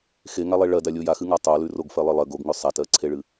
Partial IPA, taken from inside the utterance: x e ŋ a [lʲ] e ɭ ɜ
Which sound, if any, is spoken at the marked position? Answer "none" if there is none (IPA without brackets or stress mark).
lˠ